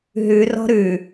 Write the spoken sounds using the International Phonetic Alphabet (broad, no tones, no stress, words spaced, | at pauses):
ɦʉ rɔ̤ɾʉ